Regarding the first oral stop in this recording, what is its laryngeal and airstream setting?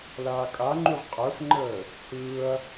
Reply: ejective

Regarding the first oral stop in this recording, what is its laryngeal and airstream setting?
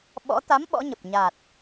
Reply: implosive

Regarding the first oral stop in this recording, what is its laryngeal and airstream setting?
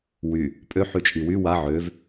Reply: ejective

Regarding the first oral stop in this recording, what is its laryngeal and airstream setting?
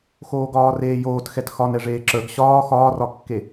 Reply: plain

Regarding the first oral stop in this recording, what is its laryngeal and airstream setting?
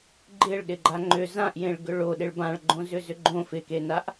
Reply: click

